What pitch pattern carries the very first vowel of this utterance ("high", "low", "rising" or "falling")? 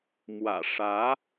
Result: low